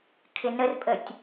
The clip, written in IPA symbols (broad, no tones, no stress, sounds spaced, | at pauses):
kʰ ɪ n ə r pʼ ə tʲ